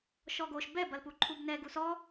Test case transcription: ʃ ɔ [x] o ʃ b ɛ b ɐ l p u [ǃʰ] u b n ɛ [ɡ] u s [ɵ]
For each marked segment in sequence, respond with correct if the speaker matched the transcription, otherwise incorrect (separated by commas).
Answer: incorrect, correct, correct, incorrect